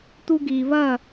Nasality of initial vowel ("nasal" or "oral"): oral